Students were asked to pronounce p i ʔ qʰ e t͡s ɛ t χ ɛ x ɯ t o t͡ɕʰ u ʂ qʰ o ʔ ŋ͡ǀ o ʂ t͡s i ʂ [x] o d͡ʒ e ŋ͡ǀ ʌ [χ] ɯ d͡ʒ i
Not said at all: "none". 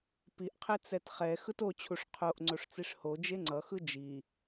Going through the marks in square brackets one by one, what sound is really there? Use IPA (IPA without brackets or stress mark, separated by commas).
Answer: h, x